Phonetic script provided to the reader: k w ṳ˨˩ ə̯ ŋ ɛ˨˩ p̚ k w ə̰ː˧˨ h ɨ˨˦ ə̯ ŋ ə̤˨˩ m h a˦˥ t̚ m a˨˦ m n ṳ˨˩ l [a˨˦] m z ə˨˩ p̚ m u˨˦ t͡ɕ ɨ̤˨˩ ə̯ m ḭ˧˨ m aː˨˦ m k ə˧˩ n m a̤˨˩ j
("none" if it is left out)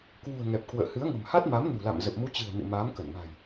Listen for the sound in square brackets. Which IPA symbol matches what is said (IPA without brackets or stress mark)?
a̰˧˨